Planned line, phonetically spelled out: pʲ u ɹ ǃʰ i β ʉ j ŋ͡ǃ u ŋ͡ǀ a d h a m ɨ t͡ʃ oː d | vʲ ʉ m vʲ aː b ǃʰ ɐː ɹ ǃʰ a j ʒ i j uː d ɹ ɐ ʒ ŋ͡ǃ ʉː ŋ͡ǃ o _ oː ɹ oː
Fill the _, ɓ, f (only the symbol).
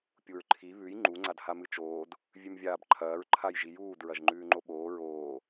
ɓ